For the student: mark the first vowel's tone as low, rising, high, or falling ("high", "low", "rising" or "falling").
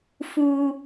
low